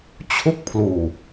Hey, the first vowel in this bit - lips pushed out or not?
yes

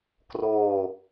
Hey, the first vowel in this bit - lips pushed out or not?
yes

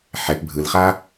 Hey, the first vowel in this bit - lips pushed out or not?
no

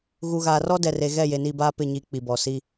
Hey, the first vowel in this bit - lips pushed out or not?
yes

